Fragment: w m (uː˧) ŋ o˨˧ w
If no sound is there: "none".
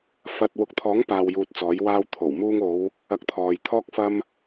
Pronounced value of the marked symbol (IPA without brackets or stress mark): uː˧